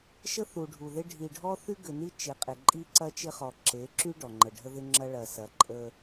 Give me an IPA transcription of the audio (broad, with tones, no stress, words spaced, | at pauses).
ʃə˦θu˨ ɖʱu˨ðɪ˦ ɖʱi˨ɖʱɔ˦θy˦ ɡʏ˨ni˦ t͡ʃɪ˨qʼɪ˨ǃʼi˦ ǀɐ˦t͡ʃɪ˦χɔ˨ ǁe˨˦ǁy˦ ɖɔ˨ŋ͡ǃə˨ɖʱə˦ðɪ˦ ŋ͡ǁɐ˦ɭɐ˨sɐ˨ ǃʼə˦